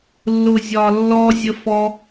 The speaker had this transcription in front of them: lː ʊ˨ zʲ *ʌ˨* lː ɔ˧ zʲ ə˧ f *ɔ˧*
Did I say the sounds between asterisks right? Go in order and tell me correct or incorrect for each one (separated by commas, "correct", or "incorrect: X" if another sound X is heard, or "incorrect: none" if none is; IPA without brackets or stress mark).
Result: incorrect: ɒ˨, correct